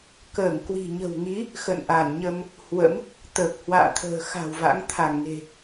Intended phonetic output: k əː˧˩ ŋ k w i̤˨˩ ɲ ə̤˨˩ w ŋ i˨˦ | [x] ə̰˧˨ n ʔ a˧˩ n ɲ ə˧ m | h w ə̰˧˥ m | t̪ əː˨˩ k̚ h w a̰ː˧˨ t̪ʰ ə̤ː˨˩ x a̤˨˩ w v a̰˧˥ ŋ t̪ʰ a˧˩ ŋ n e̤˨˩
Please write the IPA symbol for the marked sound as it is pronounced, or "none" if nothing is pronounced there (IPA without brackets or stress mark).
x